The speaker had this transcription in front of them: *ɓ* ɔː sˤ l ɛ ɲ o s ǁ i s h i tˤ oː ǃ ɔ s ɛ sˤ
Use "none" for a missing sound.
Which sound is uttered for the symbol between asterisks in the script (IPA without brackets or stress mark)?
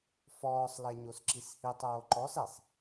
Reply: f